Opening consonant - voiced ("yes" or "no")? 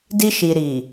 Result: yes